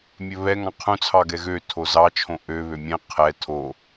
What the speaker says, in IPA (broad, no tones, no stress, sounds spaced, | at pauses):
mʲ ɵ β ɛ ŋ ɑ̃ qʰ ũ t͡sʰ ɑ ɡ ɛ ɣ ø tʰ o z ɑ t͡ʃʰ õ ʔ ø β ø mʲ ɛ̃ qʰ ɛ tʰ o